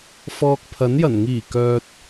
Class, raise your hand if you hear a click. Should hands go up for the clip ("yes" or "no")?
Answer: no